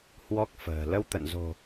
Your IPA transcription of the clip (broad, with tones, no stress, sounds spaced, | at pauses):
h w ɔ˦˥ k̚ f ə̤ː˨˩ l ə˧ w t̪ ə̰˧˨ n z o̤˨˩